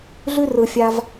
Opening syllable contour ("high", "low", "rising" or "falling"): high